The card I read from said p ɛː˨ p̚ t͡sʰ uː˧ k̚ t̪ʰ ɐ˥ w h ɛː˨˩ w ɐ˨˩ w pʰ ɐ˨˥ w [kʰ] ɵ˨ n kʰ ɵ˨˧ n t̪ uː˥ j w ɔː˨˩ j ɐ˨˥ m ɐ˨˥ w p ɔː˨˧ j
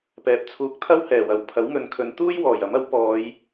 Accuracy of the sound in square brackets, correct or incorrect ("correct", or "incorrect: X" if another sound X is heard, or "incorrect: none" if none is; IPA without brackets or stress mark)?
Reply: incorrect: ŋ